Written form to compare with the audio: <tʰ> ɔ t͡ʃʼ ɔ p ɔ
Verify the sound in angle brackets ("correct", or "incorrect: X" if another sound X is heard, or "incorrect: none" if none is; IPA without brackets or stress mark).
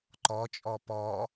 incorrect: ǃ